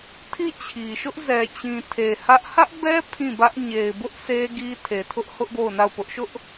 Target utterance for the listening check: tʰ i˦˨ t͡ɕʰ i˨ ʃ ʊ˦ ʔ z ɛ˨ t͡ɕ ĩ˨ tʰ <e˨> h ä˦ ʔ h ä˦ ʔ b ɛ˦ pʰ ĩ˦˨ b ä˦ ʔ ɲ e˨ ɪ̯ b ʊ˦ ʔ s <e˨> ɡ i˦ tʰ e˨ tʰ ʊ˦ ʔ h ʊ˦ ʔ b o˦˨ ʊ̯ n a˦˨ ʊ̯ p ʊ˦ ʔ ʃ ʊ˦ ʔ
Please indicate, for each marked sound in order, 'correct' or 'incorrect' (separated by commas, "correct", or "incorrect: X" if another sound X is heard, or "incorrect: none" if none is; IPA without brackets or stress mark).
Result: correct, incorrect: e˦